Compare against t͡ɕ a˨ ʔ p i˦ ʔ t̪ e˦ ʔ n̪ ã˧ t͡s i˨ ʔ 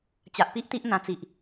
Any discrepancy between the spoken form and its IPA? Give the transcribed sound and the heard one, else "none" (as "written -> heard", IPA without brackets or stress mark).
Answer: e˦ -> i˦